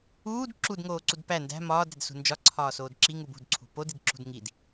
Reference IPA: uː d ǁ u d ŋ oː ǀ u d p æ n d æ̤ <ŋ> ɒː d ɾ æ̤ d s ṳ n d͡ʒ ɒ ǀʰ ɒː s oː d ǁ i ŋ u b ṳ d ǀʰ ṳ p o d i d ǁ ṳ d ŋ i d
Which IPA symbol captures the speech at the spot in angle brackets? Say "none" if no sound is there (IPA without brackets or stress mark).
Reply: m